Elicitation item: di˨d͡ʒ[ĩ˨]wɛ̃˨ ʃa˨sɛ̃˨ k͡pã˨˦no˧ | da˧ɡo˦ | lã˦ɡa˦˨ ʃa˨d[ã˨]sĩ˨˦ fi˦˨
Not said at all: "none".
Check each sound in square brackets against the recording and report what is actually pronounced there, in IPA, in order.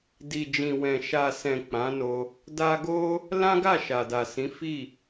ĩ˨, a˨

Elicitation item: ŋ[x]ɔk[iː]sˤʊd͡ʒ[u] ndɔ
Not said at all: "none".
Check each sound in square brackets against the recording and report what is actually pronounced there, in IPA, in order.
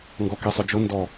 ɡ, i, ʊ

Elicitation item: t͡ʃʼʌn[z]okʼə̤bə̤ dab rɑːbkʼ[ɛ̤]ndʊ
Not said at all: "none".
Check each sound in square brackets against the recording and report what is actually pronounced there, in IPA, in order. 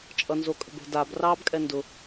z, ɛ

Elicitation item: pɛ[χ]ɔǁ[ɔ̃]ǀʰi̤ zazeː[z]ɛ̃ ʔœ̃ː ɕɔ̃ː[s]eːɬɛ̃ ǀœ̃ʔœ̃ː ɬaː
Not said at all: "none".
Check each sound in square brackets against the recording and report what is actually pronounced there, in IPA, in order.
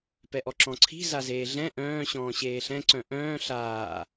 ʔ, ɔ̃, ɮ, ɕ

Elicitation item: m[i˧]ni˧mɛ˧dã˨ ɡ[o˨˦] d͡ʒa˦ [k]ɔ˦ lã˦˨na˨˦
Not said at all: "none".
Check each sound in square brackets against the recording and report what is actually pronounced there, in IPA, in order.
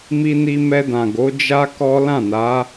i˧, o˨˦, k

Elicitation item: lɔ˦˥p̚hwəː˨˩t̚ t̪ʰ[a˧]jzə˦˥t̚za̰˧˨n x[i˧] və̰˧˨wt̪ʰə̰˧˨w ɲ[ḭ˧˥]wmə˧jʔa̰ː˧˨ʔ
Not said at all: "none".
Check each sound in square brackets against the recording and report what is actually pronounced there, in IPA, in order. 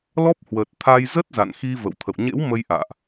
a˧, i˧, ḛ˧˥

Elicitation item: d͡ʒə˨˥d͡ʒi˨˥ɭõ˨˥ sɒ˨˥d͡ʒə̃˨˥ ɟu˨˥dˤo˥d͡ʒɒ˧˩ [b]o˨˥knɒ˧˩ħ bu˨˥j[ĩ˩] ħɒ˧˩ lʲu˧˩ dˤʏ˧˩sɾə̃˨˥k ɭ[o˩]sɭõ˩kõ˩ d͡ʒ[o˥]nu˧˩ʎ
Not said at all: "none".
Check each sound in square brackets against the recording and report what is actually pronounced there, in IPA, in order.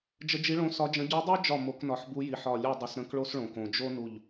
m, i˩, o˥, o˥

